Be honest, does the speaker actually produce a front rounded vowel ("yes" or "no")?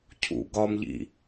no